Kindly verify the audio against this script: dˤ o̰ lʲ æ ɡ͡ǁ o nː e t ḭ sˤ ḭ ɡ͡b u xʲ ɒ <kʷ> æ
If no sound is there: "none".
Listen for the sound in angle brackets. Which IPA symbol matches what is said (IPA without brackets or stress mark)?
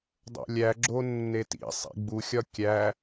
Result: kʲ